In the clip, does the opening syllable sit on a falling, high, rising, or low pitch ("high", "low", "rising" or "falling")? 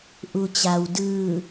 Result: low